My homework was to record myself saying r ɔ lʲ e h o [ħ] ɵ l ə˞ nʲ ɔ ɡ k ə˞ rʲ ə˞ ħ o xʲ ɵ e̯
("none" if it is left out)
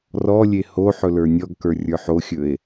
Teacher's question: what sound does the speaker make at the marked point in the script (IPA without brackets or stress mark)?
ħ